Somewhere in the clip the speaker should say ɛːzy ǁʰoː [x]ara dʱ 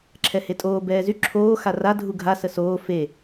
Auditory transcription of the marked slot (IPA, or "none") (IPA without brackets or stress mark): x